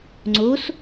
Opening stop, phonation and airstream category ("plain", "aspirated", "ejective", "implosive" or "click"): click